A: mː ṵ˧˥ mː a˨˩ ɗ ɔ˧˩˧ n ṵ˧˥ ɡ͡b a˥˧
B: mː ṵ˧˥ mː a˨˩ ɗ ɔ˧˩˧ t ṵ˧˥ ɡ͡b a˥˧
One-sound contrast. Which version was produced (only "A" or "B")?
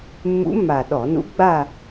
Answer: A